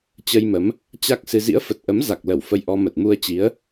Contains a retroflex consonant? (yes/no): no